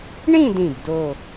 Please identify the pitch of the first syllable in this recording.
falling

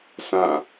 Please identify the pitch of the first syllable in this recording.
falling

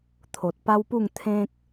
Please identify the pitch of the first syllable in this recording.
low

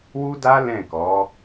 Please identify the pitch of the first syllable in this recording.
high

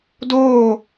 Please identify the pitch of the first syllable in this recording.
falling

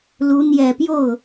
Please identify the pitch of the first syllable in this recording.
rising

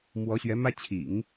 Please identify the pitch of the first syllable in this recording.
rising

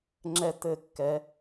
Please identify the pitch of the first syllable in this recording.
high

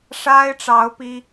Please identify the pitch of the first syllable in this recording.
high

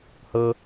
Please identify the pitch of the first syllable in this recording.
low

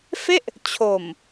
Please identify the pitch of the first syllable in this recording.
falling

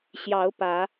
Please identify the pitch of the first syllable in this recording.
rising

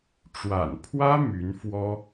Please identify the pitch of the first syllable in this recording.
low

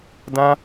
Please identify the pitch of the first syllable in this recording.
high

